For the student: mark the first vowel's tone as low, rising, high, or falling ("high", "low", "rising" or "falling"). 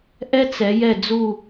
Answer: high